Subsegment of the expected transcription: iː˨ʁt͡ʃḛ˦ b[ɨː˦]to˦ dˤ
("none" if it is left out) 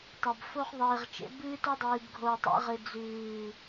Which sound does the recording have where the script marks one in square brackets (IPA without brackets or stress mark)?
ɨː˦